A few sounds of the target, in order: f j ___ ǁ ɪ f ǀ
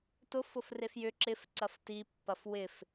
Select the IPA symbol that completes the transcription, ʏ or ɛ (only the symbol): ʏ